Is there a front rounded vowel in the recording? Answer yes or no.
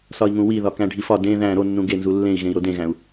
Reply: no